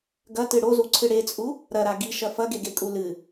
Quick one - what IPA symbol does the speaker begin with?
ɡ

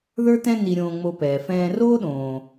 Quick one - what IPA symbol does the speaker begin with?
ð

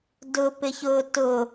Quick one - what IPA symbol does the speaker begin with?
d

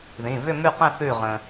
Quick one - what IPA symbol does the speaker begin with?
ð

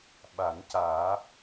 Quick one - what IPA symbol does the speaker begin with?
ɓ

